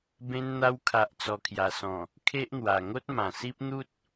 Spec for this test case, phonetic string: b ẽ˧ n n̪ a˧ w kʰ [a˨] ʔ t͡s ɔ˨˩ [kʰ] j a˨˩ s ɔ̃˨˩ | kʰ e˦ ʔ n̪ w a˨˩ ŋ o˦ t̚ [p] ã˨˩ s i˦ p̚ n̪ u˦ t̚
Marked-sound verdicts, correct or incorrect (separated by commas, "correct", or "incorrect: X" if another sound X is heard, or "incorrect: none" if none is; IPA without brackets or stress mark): correct, correct, incorrect: m